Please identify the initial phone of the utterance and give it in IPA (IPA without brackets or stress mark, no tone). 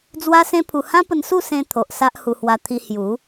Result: d͡z